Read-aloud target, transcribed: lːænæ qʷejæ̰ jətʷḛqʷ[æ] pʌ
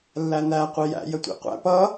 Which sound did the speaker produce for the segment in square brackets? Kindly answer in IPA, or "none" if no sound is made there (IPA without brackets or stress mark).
æ̰